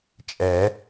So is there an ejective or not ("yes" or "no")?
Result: yes